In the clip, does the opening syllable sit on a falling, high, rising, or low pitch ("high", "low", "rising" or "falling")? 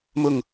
falling